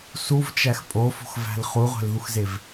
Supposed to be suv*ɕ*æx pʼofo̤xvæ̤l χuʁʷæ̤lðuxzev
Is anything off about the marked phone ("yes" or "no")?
yes